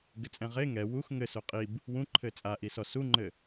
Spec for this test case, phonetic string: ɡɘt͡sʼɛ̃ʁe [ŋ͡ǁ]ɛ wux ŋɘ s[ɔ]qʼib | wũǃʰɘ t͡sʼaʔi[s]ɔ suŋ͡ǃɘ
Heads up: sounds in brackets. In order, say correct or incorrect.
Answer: incorrect: ŋ, incorrect: o, correct

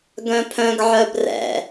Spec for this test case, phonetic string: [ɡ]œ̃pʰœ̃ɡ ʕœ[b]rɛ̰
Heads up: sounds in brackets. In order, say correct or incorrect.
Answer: correct, correct

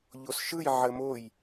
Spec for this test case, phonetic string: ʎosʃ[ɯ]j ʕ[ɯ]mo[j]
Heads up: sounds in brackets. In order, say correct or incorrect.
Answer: correct, incorrect: ə, correct

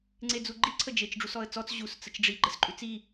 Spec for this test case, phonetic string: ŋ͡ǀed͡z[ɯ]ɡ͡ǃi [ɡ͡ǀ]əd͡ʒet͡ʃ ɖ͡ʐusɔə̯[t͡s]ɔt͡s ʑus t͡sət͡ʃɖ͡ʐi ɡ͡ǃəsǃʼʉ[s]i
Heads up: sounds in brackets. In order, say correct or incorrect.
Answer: incorrect: u, incorrect: ǀʰ, correct, incorrect: t͡s

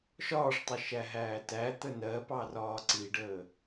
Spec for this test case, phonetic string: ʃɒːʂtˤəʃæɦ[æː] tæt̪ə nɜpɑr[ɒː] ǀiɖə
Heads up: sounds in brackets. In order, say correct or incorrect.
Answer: correct, correct

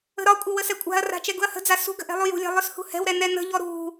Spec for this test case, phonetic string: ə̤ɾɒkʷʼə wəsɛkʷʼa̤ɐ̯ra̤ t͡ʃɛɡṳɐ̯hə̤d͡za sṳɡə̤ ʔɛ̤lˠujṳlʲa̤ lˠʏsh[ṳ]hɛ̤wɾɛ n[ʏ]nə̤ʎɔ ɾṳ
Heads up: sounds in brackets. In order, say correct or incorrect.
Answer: correct, incorrect: ɛ

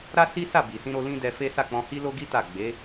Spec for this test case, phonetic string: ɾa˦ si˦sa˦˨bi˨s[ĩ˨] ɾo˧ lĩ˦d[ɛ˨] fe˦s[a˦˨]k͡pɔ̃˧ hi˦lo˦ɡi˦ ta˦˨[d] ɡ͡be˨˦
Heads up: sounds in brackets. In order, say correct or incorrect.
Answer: incorrect: ĩ˧, incorrect: ɛ˧, correct, incorrect: none

